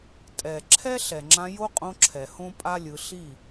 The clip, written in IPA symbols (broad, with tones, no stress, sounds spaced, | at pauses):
tʼ ɛ˨ ǁʰ ɛ˦ ɬ ɛ˨ ŋ͡ǁ ã˧ j o˦ qʼ õ˧ ǁʰ ɛ˨ h õ˦ pʼ a˦ lʲ ɯ˧ ɬ i˦˨